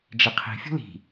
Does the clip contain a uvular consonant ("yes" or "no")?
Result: yes